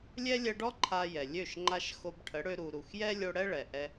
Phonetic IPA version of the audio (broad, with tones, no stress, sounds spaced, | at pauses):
lʲ ɛ˦ lʲ ɛ˧ ɖ ɔ˦ ǃʰ a˧ j ɛ˨ lʲ ø˦˨ ʃ ŋ͡ǃ a˦ ʃ x o˧ b ʈʰ ə˨˦ ɽ ø˧ ɾ u˨ ɾ u˨ x j ɛ˦ lʲ o˧ ɽ ɛ˦ ɭ ɛ˨ ʔ ɛ˧